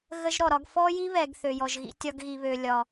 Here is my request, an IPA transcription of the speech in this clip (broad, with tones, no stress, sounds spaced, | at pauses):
ɣ ə˦ ʒ ɾ ɔ˨ ɾ ɒ˦ ɡ f ɔ˦ j i˦ β ɛ˨ ɡ θ ø˨ j ɔ˨ ʒ ɣ ḭ˦ tʲ ɒ˦ ɡ ɣ i˨ β ø˨ lʲ ɒ˨